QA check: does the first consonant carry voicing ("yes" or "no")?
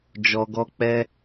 yes